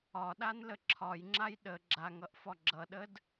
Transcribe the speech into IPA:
ɒ ɗ a n l ə ǁʰ ɒ j ŋ͡ǁ a j ɗ ə ɡ͡ǁ a ŋ ʌ ʔ f ɒ ɡ͡ǁ ʌ ɗ ə d

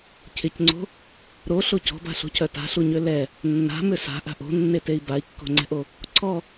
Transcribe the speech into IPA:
cʰ ɪ c ŋ͡ǀ o̤ | ɾ o ɬ o c ɔ̤ b a̤ ɬ o̤ cʰ œ t a̤ ɬ u ɲ ø l ɛ | nː a̤ m ʏ s a̤ ʔ a̤ ʔ o̤ nː e t e i̯ b a i̯ kː o̤ ŋ͡ǀ ɛ̤ ʔ o | ǀʰ ɔ

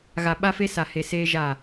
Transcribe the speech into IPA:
ɣ a˨ ɓ a˦ f e˦ s a˨ h e˨ s eː˦ ʒ a˦˨

